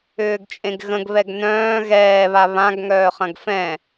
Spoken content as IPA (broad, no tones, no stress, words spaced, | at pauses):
ʏːɡt͡ʃʼẽɡɣə̃ɡ βɛɡnœ̃ː ɣɛːβa βãɡ ŋœːχɐ̃ɡfɛ̃